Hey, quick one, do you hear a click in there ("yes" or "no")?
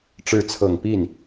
no